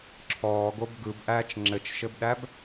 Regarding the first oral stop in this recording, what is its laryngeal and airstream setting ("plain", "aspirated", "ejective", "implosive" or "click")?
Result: click